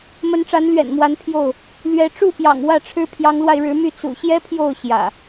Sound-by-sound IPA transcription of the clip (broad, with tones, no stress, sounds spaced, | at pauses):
m ə˨˦ n ʈ͡ʂ a˨˦ n l ɥ ɛ̰˨˩ n m w a˨˦ n pʰ j o˥˨ ʊ̯ | l ɥ ɛ˨˦ ʈ͡ʂ u˥˨ p j ɑ̰˨˩ ŋ w ä˥˨ ʈ͡ʂʰ ɻ̩˦ pʰ j ɑ˨˦ ŋ l w a˧ ɪ̯ ɻ ɻ̩˨˦ m y˥˨ t͡s ṵ˨˩ ɕ j ɛ˦ pʰ j o˥˨ ʊ̯ ɕ j ä̰˨˩